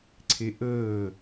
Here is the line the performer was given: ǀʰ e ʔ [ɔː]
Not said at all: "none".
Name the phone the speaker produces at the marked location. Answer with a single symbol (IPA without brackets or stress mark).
əː